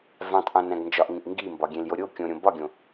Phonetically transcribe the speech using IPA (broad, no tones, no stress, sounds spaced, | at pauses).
v æ̃ tˤ ʔ õ n æ̃ ɡ n d͡ʒ ɒ ʔ ŋ ĩ ʔ ŋ ɡ i m b ɒ ɡʲ ẽ l j o ɾʲ o kʲ õ ɾʲ õ b ɒ ɡʲ õ